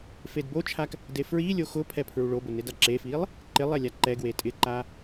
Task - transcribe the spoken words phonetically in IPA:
f e d b o t͡ʃʰ a k | d e f ɹ i lʲ o x ʊ pʰ ɛ pʰ ɹ u ɭ o b ʊ n ɪ d a ǁ e f i lˠ | ǃ ɪ lˠ ɛ lʲ a ǃ ɛ ɡ w e tʼ ɪ ǃ a

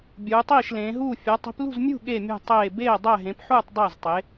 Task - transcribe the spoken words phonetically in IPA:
bʲ uː˨˦ tˤ iː˥˨ ʃ l ẽː˨˦ ɦ uː˥˨ fʲ ɒ˨˦ tˤ i̤˨˦ p l ṳ˥˨ z mʲ ṳ˥˨ ɠ e˥˨ mʲ ṳ˥˨ tˤ eː˥˨ b eː˥˨ dˤ æ˥˨ ɦ ẽ˨˦ p ħ uː˥˨ tˤ dˤ æ˥˨ z tˤ e˨˦

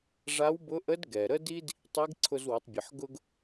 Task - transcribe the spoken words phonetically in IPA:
ʐ a˧˥ w b ʊ˧˥ ʔ ə˧˥ d ɡ ɛ˩ ɾ ə˥ d i˥ d | tˤ i˧˥ ɡ ǀʰ ʊ˧ z w ə˩˧ tˤ bʲ ə˩ ħ ɡ ʊ˧ ɡ

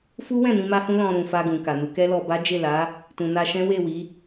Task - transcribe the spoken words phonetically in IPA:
f u˦ w ɛ̃˦˨ n ĩ˧ m a˦ h ũ˦ l ɔ̃˧ ɾ ũ˨ f a˧ ɡ ũ˨ k a˨ n u˨˦ k ɛ˦ l ɔ˧ b a˦ d͡ʒ e˦˨ l a˨˦ | t ũ˨ n a˧ ʃ ɛ̃˦ w e˦˨ w i˨˦

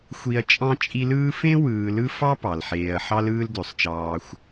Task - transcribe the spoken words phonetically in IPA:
xʷ i˦ ɐ̯ t͡ʃʼ ɑ̃˥ t͡ʃʼ i˦ l ɯː˥ f ẽ˥ w ɯː˨ l ɯ˦ f ɑ˥ p ɑ˩ l ħ eː˨ ɐ̯ ħ ɑ˥ l ɯː˦ l d ø˩ sˤ t͡ʃ ɑː˨ xʷ

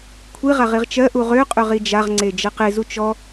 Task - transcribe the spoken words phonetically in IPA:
kʷʰ i ʁ a ʁ i ʁ t͡ʃ ɜ ʔ u ʁ ø qʼ ø ʁ i d͡ʒ a ʁ ŋ͡ǀ e d͡ʒ ɐ q e z u t͡ʃ ɔ

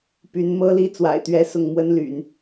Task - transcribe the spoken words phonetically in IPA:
p y˧˥ n m ɤ˥ l i˥ t͡s w a̰˨˩ ɪ̯ t̪ ɥ ɛ˧˥ s ʊ˥˩ ŋ m w ə˥ n l y̰˨˩˦ n

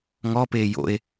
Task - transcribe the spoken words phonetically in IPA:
ŋ ɔ p eː j o̰ e̯

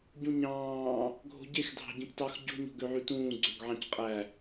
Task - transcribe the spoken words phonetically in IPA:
ɟ ũ ɲ ɑ̃ː | ɡʱ o̤ ɟ e x dʱ ɑ̤ ɟ ĩ p t ɑ x ɟ o̤ ɲ o̤ ɡ ø ʕ y t ũː ɡ͡ǀ ø ɡ ʕ ɑ̃ c qʼ æ

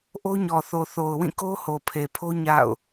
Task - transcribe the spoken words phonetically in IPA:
ʔ o˦ ɲ ɔ˨ θ o˨ θ o˨ ʊ̯ w ĩ˦˨ k o˦ h o˨ pʰ e˨ pʰ o˦ ɲ a̰˦˨ ʊ̯

